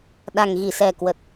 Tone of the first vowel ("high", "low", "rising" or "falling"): low